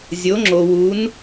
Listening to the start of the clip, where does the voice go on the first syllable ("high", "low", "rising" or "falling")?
rising